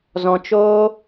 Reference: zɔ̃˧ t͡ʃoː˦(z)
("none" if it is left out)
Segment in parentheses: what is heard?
none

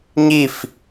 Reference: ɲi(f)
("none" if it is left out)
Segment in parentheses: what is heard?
f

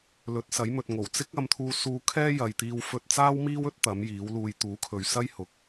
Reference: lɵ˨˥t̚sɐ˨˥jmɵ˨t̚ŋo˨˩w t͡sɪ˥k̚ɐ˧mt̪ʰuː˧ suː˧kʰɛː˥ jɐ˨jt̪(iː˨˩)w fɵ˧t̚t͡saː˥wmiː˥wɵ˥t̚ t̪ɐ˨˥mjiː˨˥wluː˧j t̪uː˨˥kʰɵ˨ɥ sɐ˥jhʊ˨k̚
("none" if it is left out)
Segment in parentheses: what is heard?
iː˧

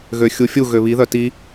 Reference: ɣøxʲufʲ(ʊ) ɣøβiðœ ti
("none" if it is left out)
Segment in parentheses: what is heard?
u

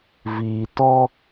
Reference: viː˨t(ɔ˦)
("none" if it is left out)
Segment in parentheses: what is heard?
ɔ˦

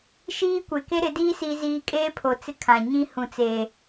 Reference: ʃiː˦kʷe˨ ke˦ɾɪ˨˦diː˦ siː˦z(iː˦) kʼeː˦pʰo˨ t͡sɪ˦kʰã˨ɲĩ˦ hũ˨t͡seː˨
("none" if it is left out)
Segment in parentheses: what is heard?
iː˦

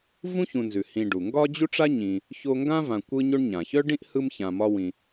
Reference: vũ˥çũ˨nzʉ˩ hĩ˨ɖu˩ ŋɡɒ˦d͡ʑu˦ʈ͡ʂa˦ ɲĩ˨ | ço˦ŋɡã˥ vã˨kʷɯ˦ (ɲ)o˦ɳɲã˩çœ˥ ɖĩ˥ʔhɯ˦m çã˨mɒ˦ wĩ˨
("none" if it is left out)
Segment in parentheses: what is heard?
ɲ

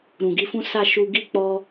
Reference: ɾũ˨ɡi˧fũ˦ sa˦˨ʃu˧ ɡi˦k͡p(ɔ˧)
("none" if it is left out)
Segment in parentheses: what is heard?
ɔ˧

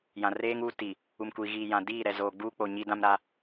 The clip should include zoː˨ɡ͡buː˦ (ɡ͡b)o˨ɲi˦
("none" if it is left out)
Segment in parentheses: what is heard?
k͡p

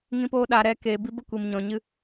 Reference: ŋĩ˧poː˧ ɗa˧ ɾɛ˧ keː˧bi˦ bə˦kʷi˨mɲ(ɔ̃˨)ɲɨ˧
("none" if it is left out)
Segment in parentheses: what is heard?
ɔ̃˨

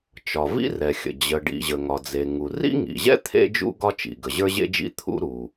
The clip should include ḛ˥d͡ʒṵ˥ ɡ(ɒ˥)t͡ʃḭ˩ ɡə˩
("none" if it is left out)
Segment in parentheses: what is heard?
ɒ˥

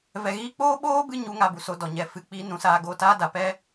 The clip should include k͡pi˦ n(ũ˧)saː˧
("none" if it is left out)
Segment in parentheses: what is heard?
ũ˧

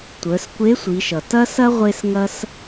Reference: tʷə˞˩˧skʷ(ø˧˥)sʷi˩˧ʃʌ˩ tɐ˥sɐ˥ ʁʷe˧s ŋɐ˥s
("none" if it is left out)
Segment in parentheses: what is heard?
e˧˥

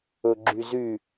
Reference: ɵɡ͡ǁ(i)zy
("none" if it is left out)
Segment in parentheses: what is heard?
y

